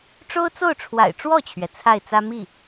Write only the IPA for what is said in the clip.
ʈ͡ʂ o˥ ʊ̯ t͡s o˥˩ ʊ̯ ʈ͡ʂʰ w a̰˨˩ ɪ̯ ʈ͡ʂ w ɔ˥˩ t͡ɕʰ ɥ ɛ˩ t͡sʰ a˥˩ ɪ̯ t͡s ä˥ m i˥˩

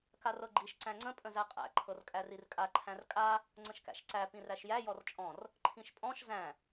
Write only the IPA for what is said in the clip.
k a r ɤ ɡ͡ǃ i ʃ ǀ æ̃ ŋ͡ǀ ə̃ pʼ ə̃ z æ qʼ æ̰ ǃʰ ɤ r kʼ æ r i r kʼ a ǃʰ æ̃ r kʼ a | ŋ͡ǀ ə̃ ʃ k æ̰ ʃ ǀ æ p ĩ r æ ʃ j æ j ɔ r t͡ʃʼ ɔ̃ r | ǃʰ ĩ ʃ pʼ ɔ̃ ʃ z æ̃

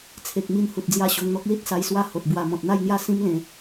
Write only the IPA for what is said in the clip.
t͡sʰ e˨ k̚ m i˧ n h u˨ t̚ d͡z j a˥˧ ɕ o˧ ŋ n̪ ɔ˦ k̚ l i˦ t̚ s a˧ j s w a˦ h o˨ t̚ b w a˧ m ɔ̃˨ t̚ n̪ a˥˧ j n̪ j a˥˧ s ĩ˦ m l ẽ˨˦

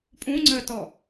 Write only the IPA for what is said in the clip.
pʼ ũ ŋ͡ǀ əː t ɔ

